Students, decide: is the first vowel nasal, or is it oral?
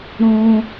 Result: nasal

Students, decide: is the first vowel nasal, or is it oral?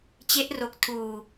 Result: oral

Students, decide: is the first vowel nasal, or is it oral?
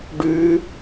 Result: oral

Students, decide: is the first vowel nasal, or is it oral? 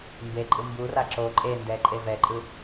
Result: oral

